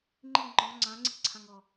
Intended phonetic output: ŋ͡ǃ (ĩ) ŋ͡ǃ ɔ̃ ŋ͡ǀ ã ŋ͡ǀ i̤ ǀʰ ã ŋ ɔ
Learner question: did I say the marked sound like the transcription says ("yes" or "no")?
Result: no